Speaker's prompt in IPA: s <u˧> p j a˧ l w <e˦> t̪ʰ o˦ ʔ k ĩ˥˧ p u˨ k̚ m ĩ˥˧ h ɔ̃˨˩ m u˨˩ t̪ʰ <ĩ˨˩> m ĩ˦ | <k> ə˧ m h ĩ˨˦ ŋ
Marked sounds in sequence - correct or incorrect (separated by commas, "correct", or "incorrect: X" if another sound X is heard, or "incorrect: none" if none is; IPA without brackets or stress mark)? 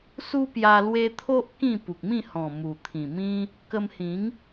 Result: incorrect: u˦, correct, correct, correct